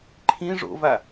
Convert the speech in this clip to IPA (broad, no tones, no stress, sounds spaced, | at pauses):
ǃʰ ĩ ʐ o̰ v a